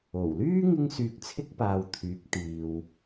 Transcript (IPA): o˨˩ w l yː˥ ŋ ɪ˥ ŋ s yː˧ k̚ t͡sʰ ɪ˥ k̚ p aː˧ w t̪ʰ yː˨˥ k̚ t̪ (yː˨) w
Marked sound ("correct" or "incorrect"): incorrect